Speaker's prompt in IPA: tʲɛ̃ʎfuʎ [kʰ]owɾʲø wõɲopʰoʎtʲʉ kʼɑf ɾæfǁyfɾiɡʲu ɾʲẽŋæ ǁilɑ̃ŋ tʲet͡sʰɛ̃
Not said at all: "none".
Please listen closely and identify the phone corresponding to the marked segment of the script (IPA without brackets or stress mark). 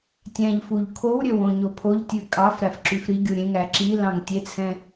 kʰ